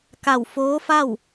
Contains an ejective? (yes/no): no